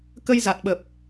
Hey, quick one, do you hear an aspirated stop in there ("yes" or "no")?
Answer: no